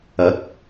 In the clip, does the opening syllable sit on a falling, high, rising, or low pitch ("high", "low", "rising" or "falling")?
rising